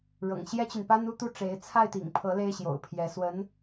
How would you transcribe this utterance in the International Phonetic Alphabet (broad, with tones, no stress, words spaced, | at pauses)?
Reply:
ɻɤ̰˨˩ŋɕjɛ˥t͡ɕy˨npa˥n u˥˧t̪u˥˩ʈ͡ʂe˧˥ɪ̯ t͡sʰa˥˩ɪ̯t̪ḭ˨˩ŋpʰɤ˧˥ le˥ɪ̯ɕjo̰˨˩ʊ̯pʰjɛ˧˥ swə˧˥n